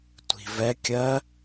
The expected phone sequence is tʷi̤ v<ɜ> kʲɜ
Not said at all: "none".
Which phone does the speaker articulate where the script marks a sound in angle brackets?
ɛ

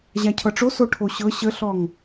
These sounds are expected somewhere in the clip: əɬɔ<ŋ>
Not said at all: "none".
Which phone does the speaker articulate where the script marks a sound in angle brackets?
ŋ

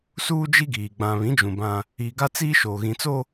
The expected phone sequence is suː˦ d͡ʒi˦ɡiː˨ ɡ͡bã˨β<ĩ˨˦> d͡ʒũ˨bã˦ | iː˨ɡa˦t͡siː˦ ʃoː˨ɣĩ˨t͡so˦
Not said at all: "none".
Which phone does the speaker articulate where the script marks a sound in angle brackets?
ĩ˨˦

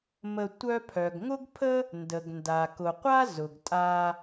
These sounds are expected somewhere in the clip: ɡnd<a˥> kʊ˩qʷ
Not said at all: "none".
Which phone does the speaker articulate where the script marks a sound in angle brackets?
a˩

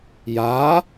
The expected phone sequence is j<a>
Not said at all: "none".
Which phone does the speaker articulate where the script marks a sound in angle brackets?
a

